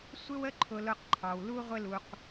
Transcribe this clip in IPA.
sʷ ɪ˦ w ə˦ ǃʰ ʊ˧ l ʊ˦ q ǃʰ ɑ˧ w l u˦ ʁʷ ɪ˦ l u˧ q

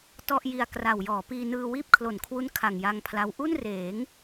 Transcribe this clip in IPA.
t ɔ˥˩ ʔ j i˧ a̯ k r a˨˩ w j ɔː˩˦ p iː˧ n ɯː˧ w iː˥˩ p̚ kʰ l o˩˦ n kʰ w u˦˥ n kʰ a˨˩ ŋ j a˧ ŋ pʰ l a˦˥ w ʔ u˥˩ n r eː˩˦ ŋ

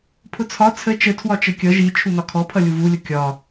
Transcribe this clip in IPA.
pʰ ʊ t͡sʰ ɒ t͡sʰ ə t͡ʃ ə tʰ w ɒ t͡ʃ ə kʲ ʌ ʒ i t͡ʃʰ u n ɒ kʰ ɔ pʰ ʌ lʲ u v u lʲ ʊ kʲ ɒ

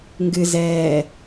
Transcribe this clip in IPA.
ŋ ɡ ɨ z ɛː

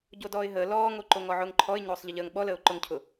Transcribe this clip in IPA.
ɟ o d ɔː ɪ̯ ɦ əː l ɔː ŋ o ǃ o ŋ ɔ ʕ ʊː ŋ ǃʰ ɔ ɪ̯ ɲ oː sˤ ʎ ə ʎ əː ŋ ɓ ɔ l əː ʊ̯ ǃ ʊ ŋ cʰ ʊ

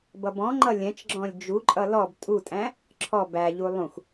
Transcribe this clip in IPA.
b ʌ b ɔ̃ ŋ͡ǃ ʌ lʲ ɛ̃ t͡ʃ ɡ͡ǁ ɔ̃ lʲ d͡ʒ u ǃʼ ʌ l ɔ b tʼ u tʼ æ̃ | ǁʰ ɔ b æ ʎ u lˠ ũ x

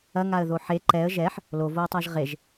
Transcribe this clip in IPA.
ɐ ŋ a ə̯ ð o ħ e ǃ ɛ ə̯ ʒ ɛ ħ | l o v o ɪ̯ tˤ a ʒ ʁ e ʒ

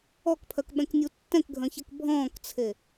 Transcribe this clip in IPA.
ɔ k pʰ œ k ɓ ɛ̃ k nʲ u tː ɛ̃ k ɡʱ œ̃ ç ɛ k bʱ ɔ̃ː k t͡sʰ e

